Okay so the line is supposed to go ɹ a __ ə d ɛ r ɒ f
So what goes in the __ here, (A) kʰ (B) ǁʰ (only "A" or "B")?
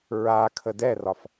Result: A